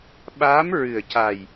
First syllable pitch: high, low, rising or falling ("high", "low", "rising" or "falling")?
rising